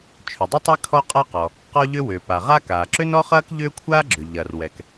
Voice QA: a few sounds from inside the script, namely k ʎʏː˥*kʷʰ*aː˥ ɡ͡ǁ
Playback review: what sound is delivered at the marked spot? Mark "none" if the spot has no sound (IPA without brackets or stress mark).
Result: kʷʰ